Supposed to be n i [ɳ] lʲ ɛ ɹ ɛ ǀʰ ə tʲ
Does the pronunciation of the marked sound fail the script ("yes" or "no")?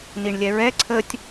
no